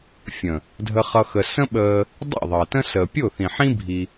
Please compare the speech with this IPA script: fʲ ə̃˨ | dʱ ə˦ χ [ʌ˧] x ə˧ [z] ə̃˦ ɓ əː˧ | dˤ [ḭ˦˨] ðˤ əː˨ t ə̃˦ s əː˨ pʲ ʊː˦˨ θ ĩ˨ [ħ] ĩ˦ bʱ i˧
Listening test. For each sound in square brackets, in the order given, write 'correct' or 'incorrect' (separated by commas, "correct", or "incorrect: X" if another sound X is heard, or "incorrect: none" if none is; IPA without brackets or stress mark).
incorrect: ʌ˦, incorrect: s, correct, correct